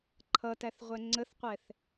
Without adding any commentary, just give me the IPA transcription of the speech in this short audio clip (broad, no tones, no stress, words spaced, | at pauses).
ǃʰʌtæθ ʁʷɛŋ͡ǀəθqʷɛθ